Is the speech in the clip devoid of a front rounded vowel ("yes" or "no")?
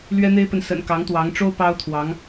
yes